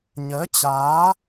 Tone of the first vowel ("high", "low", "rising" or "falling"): rising